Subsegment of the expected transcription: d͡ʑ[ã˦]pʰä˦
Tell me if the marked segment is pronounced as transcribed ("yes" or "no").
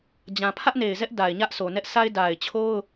no